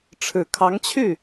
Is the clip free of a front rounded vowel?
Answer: no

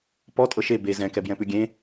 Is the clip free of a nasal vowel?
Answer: no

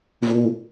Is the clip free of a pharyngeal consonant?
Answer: yes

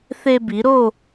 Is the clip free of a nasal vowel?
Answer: yes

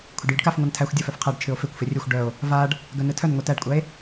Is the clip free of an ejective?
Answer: no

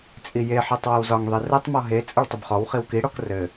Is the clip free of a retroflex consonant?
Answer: no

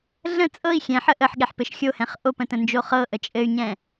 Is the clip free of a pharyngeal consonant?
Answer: no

